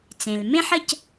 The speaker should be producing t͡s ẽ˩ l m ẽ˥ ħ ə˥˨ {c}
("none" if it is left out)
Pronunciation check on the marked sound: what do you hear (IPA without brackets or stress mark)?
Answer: c